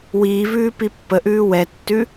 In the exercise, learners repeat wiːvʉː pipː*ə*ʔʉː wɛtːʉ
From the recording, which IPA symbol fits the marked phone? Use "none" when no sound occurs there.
ə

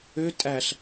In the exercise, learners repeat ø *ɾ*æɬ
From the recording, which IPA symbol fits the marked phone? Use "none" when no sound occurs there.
tʼ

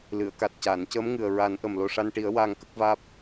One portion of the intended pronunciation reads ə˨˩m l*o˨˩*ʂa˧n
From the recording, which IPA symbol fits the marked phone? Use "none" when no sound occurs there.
o˨˩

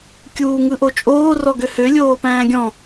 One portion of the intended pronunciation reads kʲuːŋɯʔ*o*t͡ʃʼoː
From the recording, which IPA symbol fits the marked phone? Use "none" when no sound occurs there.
o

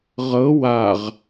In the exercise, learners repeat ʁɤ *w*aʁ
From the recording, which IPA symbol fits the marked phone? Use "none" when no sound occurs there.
w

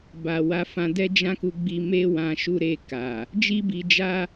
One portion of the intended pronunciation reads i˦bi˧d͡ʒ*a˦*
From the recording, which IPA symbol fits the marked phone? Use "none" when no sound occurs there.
a˦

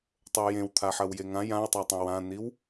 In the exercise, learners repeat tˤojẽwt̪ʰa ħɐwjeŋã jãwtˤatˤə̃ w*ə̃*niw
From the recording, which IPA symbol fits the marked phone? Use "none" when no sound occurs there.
ã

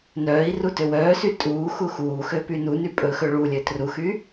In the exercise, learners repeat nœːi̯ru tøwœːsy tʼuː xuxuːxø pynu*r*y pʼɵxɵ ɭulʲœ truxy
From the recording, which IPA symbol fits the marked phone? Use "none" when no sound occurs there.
n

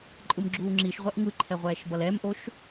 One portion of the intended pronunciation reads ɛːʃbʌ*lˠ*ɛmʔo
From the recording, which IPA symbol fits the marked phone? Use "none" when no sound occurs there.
l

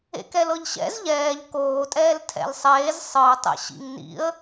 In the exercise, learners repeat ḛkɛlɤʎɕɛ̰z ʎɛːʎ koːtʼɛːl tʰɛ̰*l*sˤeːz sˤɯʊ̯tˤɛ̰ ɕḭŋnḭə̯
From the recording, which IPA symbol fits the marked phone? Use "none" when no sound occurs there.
l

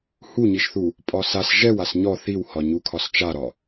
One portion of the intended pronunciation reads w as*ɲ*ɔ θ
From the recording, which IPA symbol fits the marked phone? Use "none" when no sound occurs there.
ɲ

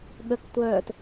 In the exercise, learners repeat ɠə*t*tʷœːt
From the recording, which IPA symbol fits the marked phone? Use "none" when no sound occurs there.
k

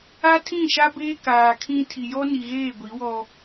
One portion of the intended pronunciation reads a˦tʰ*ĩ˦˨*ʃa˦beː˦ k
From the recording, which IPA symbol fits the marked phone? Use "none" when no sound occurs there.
ĩ˦˨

